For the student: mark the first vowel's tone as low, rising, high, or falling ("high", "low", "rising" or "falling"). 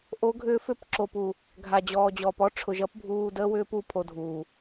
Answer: rising